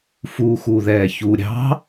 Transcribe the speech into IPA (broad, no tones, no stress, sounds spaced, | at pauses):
f uː x u ð ɛː ç u ɾʲ ɑ̤